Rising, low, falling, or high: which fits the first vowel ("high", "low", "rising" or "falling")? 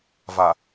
low